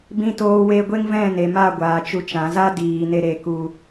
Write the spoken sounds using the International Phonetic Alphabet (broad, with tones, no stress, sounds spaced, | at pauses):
b ĩ˧ t oː˧ w e˧ ɡʷ e˦ ŋ v ɛ̃˦˨ n e˨ m a˦˨ ɡʷ aː˨ t͡ʃ u˧ t͡ʃ ã˨˦ z a˦ d iː˨ n e˧ ɾ e˧ k u˧